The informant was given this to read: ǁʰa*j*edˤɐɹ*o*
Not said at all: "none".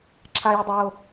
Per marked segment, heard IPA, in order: j, o

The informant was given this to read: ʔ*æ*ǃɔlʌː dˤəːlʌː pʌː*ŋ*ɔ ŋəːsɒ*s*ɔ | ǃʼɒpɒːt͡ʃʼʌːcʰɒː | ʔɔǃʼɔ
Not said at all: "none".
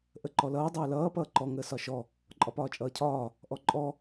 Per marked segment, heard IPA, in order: ə, ǃ, ʃ

